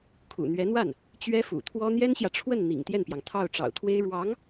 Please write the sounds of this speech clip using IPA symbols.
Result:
kʰ ṵ˨˩ n̪ ɥ ɛ˧˥ n̪ w a˥˩ n | t͡ɕ ɥ ɛ˥ f ṵ˨˩ t̪ʰ w ɔ˥ n̪ j ɛ˥ n ɕ j ä˨ ʈ͡ʂʰ w ə˥˩ n n̪ ḭ˨˩ ŋ t̪ j ɛ˥˩ n p j ɑ˩ ŋ t̪ʰ ɑ˥˩ ʊ̯ ʈ͡ʂ ɑ̰˨˩ ʊ̯ t̪ʰ w e˥ ɪ̯ ɻ w ɑ˧˥ ŋ

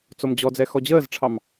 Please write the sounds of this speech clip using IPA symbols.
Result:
t͡s o m d͡ʑ ɔ d͡z ɛ x ɔ d͡ʑ əː z ʈ͡ʂʰ ɑ m

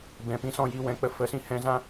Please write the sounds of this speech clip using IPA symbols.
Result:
b ɛ̃˧ p ĩ˦ s ɔ̃˦ j i˧ w ɛ̃˨˦ k͡p ə˧ f ə˨˦ s ĩ˧ h ɛ̃˧ z ã˦

